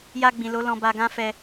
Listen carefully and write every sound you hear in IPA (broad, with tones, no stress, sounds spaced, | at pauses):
j a˧ ɡ͡b ĩ˨ l o˨˦ l ɔ̃˧ b a˧ ɡ ã˦ f ɛ˧